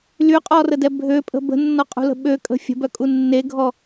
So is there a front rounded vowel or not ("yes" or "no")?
yes